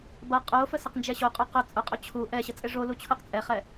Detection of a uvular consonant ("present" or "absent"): present